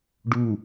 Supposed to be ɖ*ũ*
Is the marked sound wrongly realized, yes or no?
yes